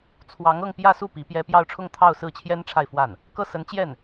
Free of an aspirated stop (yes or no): no